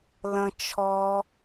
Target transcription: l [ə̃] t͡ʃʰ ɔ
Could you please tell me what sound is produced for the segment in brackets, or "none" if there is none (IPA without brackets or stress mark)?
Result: ə̃